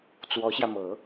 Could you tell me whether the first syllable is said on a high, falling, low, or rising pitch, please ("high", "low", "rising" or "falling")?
rising